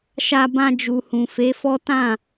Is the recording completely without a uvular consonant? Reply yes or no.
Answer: yes